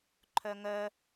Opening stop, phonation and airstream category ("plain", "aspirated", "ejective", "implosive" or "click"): click